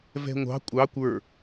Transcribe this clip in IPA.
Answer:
vɛ̤ŋʷɑ̤ kʷʼɑ kʷə˞

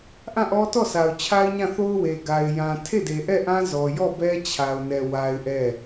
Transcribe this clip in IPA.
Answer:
ʔã˦˨ʔɔ˦tɔ˦˨ sa˨ʊ̯t͡ɕʰa˦ɪ̯ɲã˦˨ θo˦ʊ̯we˨ ɡa˨ɪ̯jã˨ tʰe˦˨de˨ʔɛ˦˨ʔã˦ zɔ˨jɔ˦˨ bɛ˦t͡ɕʰa˨ʊ̯nɛ˨ wa˦ɪ̯ʔɛ˦˨

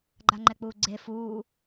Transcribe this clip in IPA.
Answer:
ɡ͡ǃaŋ͡ǃɛk͡puːɡ͡ǀe fuː

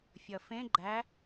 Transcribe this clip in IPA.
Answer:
fʲʌfẽ ɡ͡ǃæ

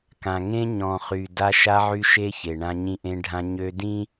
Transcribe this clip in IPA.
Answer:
kã˨ŋẽ˦ ɲɔ̃˨χy˨ da˦ ʃa˦ʕy˦ʃe˦ çe˨ɳã˦ ɲĩ˦ʔẽ˦ɖʱã˦ ɲø˦ dĩ˦

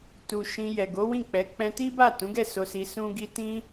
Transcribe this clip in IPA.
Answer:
tu˨ ʃĩ˧jɛ˨ ɡo˨˦wĩ˦˨k͡pɛ˨˦ k͡pɛ̃˧ti˦ba˦˨ tũ˨˦ɡɛ˦˨ so˧si˧ sũ˦ɡi˦ tĩ˦

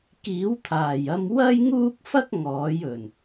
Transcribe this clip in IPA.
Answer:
kiː˨˥wt̪ʰaː˨˩jɐ˧m wɐ˥jŋuː˥k̚fɐ˥k̚ ŋɔː˨˥jɵ˨˩n

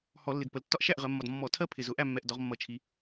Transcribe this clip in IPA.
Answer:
hɔ˧˩˧lːɪ˨˩dpə˩˧l tːɒ˦ʔʃæ˥˩ʔʁɜ˩˧mːɒ˨˩d mːɔ˧˩˧tʰɜ˦ pʰɪ˨˩zʊ˧˩˧ ʔæ˥˩mːɛ˨˩ʔ dɒ˨˥ʁmːʌ˧˩˧t͡ʃʰi˩˧

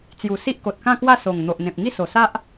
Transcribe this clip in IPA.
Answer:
t͡sju˨˩ si˦ʔko˨t̚kã˥˧kwa˥˧ so˨˩ŋ n̪o˨ʔn̪ẽ˨p̚ ŋi˥˧so˨˩sa˦ʔ

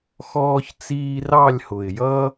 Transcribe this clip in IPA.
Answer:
xɔː˥çt͡siː˥ rɑ˥˧lʲhʊ˨˩ɪ̯jʌ˥

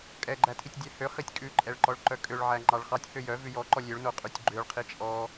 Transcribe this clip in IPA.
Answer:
kʼɛɡ͡ǃætʰitʲdʲæ høχitʲ kʼʉǃʼɛɭǃɔɭǃœ kʼøɭʕæŋ͡ǃɑɭ χɑtʲhø jœvʉ jɔǃɔ lʲøɭnoqʼʉtʲ ɡ͡ǃøɭqʰi t͡ʃʼɔ

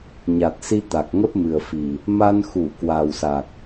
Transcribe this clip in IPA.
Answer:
ɲa˨˩t̚si˧ t̪a˨˩k̚ŋə˦˥p̚mɨ˨˩ə̯fi˨˩ | ma˧n xu˧˩ kwa˨˩wsa˨˩k̚

